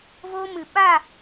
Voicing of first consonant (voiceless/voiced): voiced